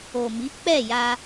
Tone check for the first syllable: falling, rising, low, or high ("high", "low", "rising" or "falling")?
low